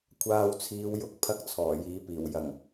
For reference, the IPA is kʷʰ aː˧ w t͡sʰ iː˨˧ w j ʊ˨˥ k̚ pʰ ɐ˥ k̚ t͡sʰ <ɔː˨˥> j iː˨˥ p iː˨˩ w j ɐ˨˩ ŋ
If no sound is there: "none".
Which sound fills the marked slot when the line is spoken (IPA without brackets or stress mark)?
ɔː˨˩